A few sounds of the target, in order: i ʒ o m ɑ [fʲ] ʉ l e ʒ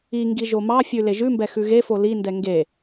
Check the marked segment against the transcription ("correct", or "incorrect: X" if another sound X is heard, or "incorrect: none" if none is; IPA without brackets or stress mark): correct